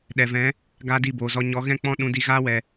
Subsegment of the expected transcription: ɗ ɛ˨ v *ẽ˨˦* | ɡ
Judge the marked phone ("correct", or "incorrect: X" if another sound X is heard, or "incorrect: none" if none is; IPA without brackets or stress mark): incorrect: ɛ̃˨˦